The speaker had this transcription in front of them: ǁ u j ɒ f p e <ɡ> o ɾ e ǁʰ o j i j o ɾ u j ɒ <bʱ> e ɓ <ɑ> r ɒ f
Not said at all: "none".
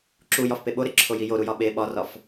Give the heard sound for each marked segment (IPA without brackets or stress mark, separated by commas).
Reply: ɓ, ɓ, ɒ